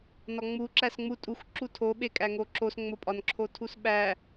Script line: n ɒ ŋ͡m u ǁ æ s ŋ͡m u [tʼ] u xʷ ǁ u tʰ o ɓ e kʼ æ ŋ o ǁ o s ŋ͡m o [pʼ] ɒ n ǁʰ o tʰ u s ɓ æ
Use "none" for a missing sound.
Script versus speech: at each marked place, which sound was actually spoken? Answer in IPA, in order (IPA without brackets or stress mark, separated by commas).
tʼ, pʼ